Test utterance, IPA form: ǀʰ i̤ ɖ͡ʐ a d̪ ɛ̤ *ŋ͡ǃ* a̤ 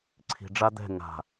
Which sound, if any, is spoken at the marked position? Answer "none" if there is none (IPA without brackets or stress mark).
ŋ